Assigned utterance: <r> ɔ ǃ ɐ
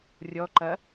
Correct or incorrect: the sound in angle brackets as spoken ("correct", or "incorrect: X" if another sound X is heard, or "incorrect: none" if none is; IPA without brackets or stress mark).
incorrect: rʲ